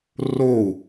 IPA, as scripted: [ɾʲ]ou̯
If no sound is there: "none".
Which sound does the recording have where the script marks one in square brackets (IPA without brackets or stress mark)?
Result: r